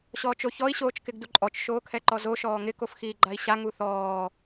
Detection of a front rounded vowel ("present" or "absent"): absent